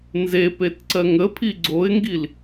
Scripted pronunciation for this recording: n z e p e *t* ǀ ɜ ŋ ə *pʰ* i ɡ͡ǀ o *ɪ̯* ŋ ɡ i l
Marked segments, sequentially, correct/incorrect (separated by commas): correct, correct, correct